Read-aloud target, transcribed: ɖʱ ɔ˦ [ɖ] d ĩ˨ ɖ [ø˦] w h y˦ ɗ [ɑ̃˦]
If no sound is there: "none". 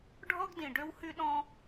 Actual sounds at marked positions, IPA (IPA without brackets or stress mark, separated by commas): ɡ, ø˦, ɔ̃˦